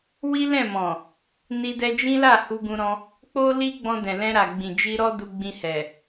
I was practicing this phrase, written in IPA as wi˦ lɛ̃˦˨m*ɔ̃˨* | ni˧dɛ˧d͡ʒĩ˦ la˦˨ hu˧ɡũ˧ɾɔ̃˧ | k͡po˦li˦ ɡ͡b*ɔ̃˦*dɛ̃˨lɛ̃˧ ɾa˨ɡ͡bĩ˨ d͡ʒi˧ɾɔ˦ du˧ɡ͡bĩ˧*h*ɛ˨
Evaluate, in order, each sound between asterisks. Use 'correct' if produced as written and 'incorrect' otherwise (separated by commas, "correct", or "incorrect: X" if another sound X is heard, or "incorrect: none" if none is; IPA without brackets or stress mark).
correct, incorrect: ɔ̃˧, correct